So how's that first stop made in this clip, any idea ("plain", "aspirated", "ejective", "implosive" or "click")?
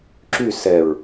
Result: click